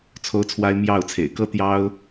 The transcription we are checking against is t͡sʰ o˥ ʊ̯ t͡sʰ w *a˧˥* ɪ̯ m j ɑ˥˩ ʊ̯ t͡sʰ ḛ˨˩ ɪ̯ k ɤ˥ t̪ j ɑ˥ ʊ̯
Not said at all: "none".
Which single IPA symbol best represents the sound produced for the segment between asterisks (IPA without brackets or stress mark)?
a˥